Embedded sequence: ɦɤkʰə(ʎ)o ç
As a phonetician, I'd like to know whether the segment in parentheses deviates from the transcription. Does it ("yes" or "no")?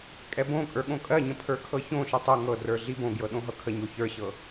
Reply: yes